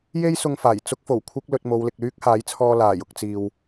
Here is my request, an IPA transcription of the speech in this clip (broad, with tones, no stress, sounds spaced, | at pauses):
j e˥ j s ʊ˧ ŋ f aː˨˩ j t͡s ʊ˥ k̚ f o˨˩ w kʷʰ ɪ˥ k̚ l ɵ˧ t̚ m o˨˧ w l ɪ˨ k̚ l yː˥ k̚ h aː˨˥ j t͡sʰ ɔː˧ l aː˨˩ j ʊ˧ k̚ t͡s iː˨ w